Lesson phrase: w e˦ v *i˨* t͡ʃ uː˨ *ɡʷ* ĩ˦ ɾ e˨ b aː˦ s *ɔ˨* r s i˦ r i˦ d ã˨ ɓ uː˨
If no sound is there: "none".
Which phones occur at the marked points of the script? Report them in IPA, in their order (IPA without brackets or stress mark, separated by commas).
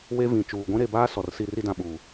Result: ĩ˨, ɡʷ, ɔ˨